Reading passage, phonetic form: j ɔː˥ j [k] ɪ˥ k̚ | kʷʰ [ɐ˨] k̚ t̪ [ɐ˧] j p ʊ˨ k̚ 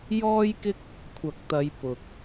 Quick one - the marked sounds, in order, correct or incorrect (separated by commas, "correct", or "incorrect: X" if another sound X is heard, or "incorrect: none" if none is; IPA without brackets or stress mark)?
correct, correct, incorrect: ɐ˨˧